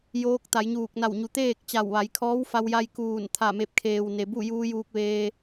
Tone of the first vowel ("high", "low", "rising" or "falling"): rising